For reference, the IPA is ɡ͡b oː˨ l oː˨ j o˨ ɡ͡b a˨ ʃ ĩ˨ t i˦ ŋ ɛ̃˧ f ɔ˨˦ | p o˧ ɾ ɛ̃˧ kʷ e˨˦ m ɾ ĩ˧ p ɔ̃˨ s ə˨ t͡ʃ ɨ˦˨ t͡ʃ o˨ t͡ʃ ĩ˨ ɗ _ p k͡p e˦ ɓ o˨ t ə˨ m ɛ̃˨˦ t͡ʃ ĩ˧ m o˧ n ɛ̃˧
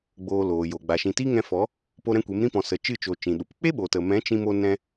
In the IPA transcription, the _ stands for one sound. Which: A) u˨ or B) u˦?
A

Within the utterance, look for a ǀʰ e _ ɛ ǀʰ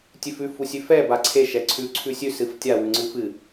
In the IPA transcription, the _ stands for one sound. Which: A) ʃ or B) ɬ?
A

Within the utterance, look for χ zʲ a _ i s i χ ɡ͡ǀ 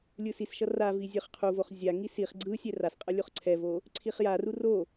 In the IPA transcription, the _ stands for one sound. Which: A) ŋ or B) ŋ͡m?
A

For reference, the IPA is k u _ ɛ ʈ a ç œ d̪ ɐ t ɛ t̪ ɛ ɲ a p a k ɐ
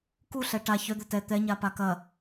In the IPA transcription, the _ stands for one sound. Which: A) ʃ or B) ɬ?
B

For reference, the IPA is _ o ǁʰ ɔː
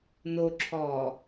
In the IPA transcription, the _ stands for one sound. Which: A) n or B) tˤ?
A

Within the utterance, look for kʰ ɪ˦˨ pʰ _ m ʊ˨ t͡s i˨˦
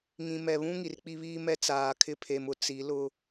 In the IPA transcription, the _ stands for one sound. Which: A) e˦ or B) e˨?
B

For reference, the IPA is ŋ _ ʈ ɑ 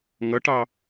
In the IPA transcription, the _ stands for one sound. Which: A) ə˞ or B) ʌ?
B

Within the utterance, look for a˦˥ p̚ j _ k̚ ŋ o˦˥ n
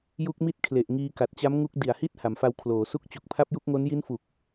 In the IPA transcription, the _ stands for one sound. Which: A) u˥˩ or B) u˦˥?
B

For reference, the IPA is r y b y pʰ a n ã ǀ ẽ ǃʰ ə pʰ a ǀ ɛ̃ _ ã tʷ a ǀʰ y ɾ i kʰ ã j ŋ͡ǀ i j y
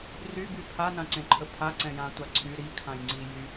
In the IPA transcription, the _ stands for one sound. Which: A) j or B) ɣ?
A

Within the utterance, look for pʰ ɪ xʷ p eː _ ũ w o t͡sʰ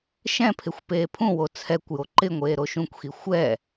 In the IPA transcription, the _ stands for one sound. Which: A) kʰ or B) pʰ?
B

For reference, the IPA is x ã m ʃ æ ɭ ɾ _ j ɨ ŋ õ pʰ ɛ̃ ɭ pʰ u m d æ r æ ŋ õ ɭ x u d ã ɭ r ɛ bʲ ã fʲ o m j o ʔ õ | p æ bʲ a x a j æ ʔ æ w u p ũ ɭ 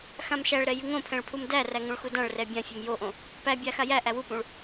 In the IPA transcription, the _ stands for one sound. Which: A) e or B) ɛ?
B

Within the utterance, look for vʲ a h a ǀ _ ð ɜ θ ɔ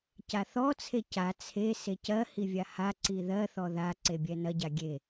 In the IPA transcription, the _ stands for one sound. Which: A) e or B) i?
B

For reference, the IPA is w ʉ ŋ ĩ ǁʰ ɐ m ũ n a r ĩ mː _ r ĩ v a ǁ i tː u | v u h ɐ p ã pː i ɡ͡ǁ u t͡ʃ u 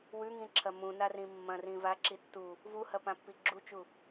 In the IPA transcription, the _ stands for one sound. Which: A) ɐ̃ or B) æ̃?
A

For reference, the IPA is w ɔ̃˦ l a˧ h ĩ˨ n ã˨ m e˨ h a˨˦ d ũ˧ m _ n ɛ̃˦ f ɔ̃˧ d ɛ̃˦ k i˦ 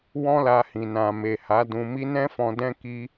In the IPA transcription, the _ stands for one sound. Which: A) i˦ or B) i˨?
A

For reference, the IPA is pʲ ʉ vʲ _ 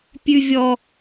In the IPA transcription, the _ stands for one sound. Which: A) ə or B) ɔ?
B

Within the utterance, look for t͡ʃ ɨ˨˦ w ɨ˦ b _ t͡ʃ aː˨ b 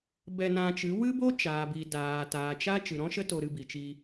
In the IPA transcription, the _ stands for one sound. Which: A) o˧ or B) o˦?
B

